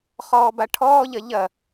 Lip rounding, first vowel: rounded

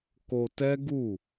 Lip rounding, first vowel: rounded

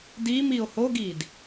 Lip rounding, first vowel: unrounded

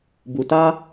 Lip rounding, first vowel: rounded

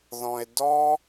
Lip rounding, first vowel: rounded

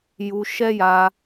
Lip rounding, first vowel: rounded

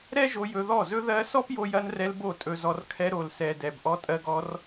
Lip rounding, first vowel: unrounded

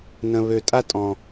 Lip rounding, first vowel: unrounded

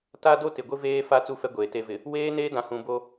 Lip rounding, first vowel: unrounded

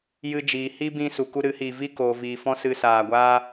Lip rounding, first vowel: unrounded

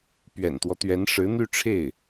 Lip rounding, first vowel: unrounded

